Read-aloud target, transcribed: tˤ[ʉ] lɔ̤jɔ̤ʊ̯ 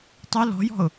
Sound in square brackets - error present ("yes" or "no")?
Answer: no